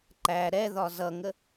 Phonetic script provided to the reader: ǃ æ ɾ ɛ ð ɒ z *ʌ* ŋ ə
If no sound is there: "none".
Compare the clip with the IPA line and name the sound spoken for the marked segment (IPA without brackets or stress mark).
ʌ